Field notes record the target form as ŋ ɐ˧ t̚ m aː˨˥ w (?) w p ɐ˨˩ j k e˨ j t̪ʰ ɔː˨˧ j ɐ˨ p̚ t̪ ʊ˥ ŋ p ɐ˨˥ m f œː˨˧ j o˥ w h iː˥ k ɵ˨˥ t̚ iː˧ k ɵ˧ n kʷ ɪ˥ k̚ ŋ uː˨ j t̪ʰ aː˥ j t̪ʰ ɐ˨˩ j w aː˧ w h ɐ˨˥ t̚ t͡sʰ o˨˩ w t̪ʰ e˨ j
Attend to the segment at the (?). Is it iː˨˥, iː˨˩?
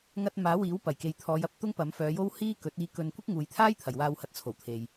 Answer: iː˨˥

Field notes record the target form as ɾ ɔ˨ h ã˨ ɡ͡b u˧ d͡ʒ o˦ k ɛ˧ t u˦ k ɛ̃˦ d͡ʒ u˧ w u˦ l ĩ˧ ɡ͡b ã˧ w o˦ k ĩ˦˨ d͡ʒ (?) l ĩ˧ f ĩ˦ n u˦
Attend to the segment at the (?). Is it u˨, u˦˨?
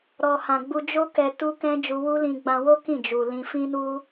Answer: u˨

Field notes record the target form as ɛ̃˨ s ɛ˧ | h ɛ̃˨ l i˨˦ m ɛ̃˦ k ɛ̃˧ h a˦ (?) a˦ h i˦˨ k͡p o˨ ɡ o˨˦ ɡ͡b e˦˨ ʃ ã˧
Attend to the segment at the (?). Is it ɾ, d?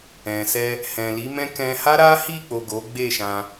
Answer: ɾ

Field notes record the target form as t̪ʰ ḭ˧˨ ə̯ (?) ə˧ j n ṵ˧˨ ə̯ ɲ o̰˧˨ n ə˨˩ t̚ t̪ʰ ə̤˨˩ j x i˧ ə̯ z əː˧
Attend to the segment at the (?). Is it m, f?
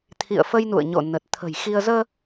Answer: f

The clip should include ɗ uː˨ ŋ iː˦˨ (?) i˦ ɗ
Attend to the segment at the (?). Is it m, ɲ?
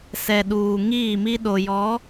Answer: m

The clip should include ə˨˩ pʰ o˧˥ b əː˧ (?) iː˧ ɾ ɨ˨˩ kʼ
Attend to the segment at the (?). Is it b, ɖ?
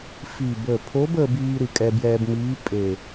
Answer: b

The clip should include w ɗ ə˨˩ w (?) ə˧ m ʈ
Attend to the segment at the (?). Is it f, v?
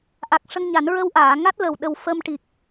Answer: f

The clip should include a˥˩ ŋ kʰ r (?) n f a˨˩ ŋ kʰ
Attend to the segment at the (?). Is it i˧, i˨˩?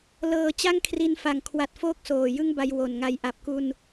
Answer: i˧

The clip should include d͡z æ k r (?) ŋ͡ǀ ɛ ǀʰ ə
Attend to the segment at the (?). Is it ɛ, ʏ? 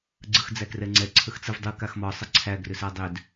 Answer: ɛ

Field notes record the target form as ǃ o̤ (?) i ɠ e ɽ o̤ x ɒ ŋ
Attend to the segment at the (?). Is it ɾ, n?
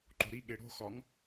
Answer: ɾ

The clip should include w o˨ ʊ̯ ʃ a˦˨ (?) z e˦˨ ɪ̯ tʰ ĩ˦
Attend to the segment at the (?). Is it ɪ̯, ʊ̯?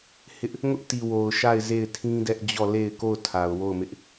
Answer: ɪ̯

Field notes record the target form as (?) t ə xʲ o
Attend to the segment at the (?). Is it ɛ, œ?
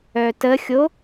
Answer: œ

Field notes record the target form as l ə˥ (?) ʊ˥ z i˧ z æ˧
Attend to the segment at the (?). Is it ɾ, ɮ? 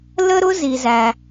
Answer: ɾ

